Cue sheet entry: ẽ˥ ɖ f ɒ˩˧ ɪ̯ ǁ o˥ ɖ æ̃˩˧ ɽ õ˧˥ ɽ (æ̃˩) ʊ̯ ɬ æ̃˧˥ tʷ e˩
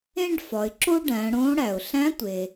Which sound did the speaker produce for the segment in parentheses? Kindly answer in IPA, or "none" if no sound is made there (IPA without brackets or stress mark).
æ˩